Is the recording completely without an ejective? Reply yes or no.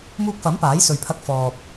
yes